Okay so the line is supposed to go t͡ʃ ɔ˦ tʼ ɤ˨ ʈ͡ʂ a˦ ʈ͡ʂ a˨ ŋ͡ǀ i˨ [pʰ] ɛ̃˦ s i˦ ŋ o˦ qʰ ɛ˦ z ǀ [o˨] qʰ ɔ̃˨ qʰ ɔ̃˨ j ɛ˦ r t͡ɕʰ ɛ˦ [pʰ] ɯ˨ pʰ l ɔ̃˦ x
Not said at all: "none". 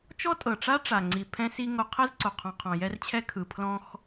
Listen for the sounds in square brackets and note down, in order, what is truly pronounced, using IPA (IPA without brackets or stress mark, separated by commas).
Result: pʰ, o˨, kʰ